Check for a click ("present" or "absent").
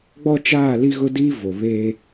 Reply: absent